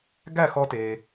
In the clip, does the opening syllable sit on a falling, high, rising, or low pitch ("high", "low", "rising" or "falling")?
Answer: falling